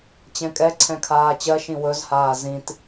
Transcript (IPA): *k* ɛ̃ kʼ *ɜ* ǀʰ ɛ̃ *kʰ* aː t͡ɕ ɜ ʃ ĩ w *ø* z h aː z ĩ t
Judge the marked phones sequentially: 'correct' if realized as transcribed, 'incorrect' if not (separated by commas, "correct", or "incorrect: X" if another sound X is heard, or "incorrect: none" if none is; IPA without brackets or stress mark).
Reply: incorrect: t͡ɕ, incorrect: ɛ, correct, incorrect: ɵ